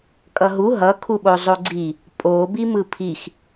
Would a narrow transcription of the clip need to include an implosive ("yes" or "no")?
yes